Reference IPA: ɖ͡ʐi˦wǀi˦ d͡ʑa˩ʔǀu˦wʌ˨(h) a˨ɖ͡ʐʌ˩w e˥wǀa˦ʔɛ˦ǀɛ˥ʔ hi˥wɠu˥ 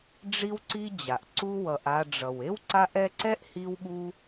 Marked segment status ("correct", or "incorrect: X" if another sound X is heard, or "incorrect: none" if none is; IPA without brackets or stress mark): incorrect: ʔ